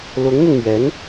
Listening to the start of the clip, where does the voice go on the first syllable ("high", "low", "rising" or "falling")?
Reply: rising